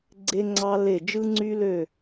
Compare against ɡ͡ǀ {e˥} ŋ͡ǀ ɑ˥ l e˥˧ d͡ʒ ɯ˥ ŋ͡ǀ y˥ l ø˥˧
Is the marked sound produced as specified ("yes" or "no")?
yes